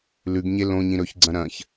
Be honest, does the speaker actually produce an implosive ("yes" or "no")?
no